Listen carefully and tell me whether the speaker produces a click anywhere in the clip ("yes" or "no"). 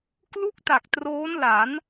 no